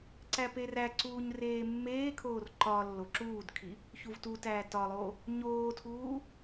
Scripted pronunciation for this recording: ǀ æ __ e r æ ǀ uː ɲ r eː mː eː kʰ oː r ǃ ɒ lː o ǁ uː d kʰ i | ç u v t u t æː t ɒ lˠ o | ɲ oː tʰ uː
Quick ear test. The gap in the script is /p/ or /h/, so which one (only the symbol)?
p